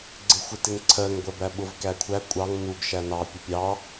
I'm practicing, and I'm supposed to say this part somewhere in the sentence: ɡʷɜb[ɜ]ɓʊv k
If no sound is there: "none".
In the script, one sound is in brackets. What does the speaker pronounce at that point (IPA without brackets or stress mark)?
æ